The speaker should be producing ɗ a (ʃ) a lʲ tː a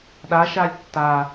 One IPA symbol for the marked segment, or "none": ʃ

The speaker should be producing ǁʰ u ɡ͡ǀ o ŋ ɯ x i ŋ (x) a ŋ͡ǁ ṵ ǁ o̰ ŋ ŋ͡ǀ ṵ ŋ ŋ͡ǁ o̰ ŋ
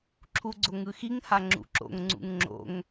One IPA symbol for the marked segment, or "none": h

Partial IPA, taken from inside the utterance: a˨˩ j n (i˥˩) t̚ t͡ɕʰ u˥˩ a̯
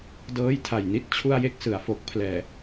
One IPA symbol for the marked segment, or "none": i˥˩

